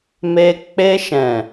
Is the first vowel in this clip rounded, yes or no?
no